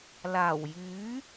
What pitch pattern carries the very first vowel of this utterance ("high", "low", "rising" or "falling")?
low